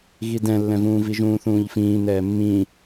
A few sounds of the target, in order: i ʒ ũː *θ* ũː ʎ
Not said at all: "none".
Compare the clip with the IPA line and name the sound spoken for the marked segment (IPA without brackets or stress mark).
θ